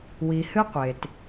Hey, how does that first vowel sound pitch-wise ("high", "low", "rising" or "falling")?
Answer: low